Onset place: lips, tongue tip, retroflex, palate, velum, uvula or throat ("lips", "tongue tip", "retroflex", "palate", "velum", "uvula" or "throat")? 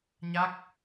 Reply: palate